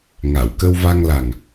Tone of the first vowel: low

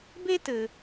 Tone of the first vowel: high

